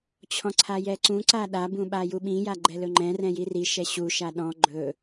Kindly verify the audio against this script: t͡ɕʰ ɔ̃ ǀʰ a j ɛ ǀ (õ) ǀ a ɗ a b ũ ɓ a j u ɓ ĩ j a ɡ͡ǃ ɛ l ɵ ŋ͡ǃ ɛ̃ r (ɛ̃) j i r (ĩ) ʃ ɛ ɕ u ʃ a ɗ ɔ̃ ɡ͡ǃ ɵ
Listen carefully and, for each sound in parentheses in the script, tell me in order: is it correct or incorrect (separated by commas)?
incorrect, correct, incorrect